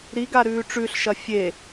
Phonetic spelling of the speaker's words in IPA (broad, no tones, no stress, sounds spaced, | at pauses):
ɾ i ɡ a ɾ ʉː ʈ͡ʂ ʉ ɬ ʃ ɐ fʲ e